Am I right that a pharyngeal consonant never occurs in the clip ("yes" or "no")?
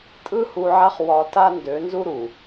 no